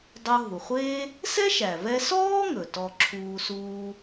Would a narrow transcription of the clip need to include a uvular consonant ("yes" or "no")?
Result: yes